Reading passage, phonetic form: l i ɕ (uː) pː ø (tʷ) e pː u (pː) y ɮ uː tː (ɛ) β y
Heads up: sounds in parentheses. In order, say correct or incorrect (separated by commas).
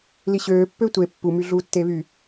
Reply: incorrect, correct, incorrect, incorrect